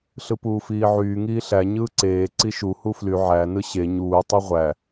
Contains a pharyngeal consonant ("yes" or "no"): yes